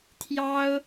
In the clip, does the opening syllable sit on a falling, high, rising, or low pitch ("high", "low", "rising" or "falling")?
high